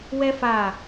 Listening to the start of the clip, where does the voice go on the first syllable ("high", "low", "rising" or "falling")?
high